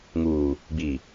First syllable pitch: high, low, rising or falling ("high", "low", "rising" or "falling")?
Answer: low